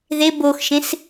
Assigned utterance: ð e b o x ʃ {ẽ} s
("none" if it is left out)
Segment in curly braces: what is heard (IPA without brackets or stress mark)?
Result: ẽ